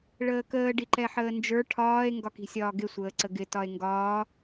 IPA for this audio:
ɭəːkəː ɖiǃɛħəːnd͡ʒə˞ ʈʰɒːe̯ ŋɡɒki̤sʲɒːɡɪ sʷəːǀəɡɪ tɒe̯ŋɡɒː

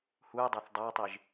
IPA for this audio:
hujdˤɜθ dˤætˤiʒ

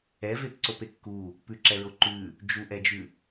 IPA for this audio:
ɛvepǀope kːu | pʉǁɛɹo ǃʉ | d͡ʒuʔɛd͡ʒʉ

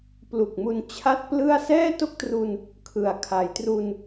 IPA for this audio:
plu˨˩k̚mu˧n t͡ɕʰa˥˩t̚plɯ˥˩a̯ sɛː˥˩to˥˩k̚tru˧n | kʰɯ˩˦a̯ kʰa˩˦jtru˧n

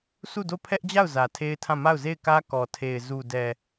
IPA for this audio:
sʰu˦˨do˦˨ pʰɛ˦ʔd͡ʑa˦˨ʊ̯ zä˨tʰe˦ɪ̯tʰã˦˨ ma˦˨ʊ̯ze˦˨ɪ̯kä˦ kɔ˨tʰe˨ɪ̯ zu˨dɛ˨

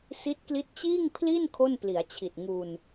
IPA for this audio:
si˦˥t̚kli˦˥t̚t͡ɕiː˥˩ŋ pʰli˥˩n kʰo˥˩npli˩˦a̯t͡ɕʰi˨˩t̚ŋu˧n

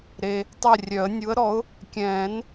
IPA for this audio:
ɾe˨ | tˤɛ˦˨rʲœ˨˩˦ə̯ nʲu˨˥ə̯ɾɔ˨˥ʊ̯ | kʲɛ̃ː˨˩˦n

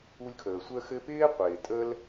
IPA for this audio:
u˦lʲkʰəː˨ sʷə˦xɘ˦pɪː˥qʷɪː˨ tʼəː˥l

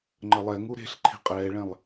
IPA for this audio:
ŋ͡ǃəlˠɛŋu ɾe̤ɬ ǃʰi̤qʼɛːɭɛ̃lˠ

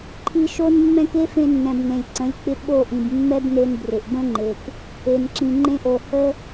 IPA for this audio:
ǃʰi˧ʃo˦nmːɛ̃˦k e˦fẽ˧nːɛ̃˨b nẽ˨lʲǀə̃˨˦lʲk͡pɪ˧ ɓo˦˨ʔĩ˨bmːɛ˦bne˧n brɪ˨ʔ bə̃˦ŋ͡ǃe˨k | e˨nǁĩ˨ŋ͡ǃẽ˧ʔo˨ hə˦

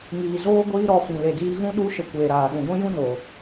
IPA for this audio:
ŋiː˨zoː˦ ɡʷiː˦ɾɔ˧fĩ˨ le˨diː˧ɣũ˦ ɗu˦ʃə˧ kʷeː˨ɾaː˨ ɗũ˨ɡʷĩ˦jũ˦no˨

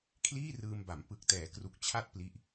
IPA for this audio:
kʰliː˥˩rɯː˧mba˩˦m pɯ˨˩k̚tɛː˩˦kru˨˩k̚ t͡ɕʰa˥˩t̚ pli˦˥ʔ

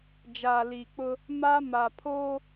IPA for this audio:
d͡ʒaː˨liː˨k͡pʊ˦ | maː˦ma˨pʰo˦

